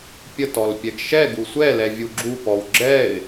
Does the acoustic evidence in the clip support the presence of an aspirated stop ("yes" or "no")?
no